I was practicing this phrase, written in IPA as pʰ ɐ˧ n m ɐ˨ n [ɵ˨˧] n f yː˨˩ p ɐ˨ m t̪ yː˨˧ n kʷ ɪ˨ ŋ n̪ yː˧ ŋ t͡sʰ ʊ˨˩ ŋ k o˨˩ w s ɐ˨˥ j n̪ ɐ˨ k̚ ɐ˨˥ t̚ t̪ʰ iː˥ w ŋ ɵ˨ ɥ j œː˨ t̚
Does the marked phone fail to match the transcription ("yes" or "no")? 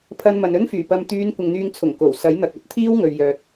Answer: yes